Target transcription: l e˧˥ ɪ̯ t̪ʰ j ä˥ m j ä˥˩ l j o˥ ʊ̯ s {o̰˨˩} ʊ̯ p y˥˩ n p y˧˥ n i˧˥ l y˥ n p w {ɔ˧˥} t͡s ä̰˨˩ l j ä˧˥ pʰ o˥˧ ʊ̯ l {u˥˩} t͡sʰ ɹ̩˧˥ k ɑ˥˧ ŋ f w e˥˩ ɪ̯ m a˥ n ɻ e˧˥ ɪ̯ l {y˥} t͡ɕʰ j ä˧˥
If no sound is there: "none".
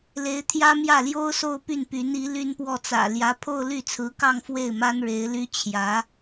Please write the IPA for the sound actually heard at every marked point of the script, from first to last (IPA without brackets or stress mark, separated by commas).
o˥˧, ɔ˥˩, y˥˩, y˥